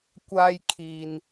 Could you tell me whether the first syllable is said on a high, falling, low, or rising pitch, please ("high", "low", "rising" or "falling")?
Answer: high